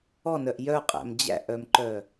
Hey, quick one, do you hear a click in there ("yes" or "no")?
yes